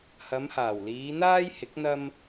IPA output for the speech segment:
h ɐ˨˧ m h aː˨˩ w l iː˨˧ n̪ aː˥ j h ɪ˨˥ k̚ n̪ ɐ˥ m

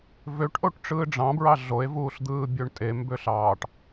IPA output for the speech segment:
v ø ʈ ʔ o ʈ ʈ͡ʂ ɯː ɖ͡ʐ ɑ̃ b ɹ ɑ ɮ o e̯ v uː ɬ d̪ ɯː bʲ ø ɳ tʼ e m b ø ɬ ɑː ʈ

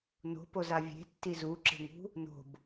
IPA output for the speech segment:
n o̤ p o z a vʲ e̤ tː i z u ǁ e̤ ŋ ṳ | n o̤ b

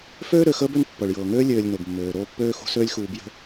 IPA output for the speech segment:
f øː˥ ɾ ø˨ x əː˥ b ø˦ n pː ɤ˩ ɭ j ɤː˩ ŋ øː˥ lʲ øː˨ lʲ n o˩ b mː øː˩ ɾ oː˦ pː øː˥ x ṳ˦ s øː˥ lʲ x uː˨ b j ə̤˦

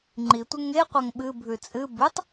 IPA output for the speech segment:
ŋ͡ǃ i tʷ ɨ ŋ e qʷ ɐ ŋ ɓ ɨ bʱ ʉ t͡sʼ ɨ b ʉ tˤ

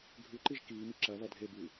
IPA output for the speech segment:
ɡʱ ʉ ǃ i ʒ k iː m i ǁ ɐ β ɐ dʱ e b ʉː

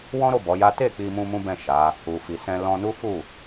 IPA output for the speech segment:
w ɔ̃˦ ɾ o˦˨ b ɔ˨˦ j a˦ t e˦˨ k͡p i˧ m ũ˧ m ũ˦ b ɛ̃˦˨ ʃ a˨˦ | u˨ f i˨ s ɛ̃˧ l ɔ̃˧ n u˦ f u˦˨

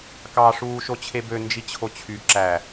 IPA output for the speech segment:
k ɑ ʂ uː ʃ o t͡ɕʰ e b ø n d͡ʒ i t͡ɕʰ o t͡ɕʰ y ǁ æ

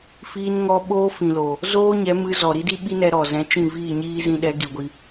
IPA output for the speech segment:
f iː˧ n ŋ ɔ˧ ɓ oː˦ f ĩ˨ l o˨ | z oː˦ ɲ ɛ˨˦ m ɨ˧ z ɔ˨ ɾ i˦ d i˦ ɓ i˦ n ɛ˧ ɾ ɔ˨ z ɛ̃˨˦ t͡ʃ ĩ˦˨ v iː˦˨ ɲ iː˦ z ĩ˧ ɗ ɛ˨˦ ɡ i˧ ɡʷ i˦

